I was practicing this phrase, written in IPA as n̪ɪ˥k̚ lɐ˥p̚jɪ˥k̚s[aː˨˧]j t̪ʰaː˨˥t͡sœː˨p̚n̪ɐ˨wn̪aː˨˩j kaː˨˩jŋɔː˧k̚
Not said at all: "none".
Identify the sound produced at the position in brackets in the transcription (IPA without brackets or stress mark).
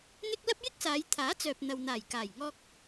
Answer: aː˨˧